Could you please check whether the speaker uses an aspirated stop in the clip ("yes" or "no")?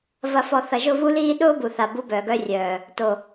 no